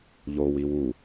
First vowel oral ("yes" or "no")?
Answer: yes